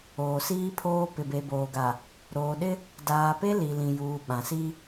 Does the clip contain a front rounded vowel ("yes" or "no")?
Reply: no